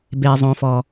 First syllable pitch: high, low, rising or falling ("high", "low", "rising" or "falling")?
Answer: low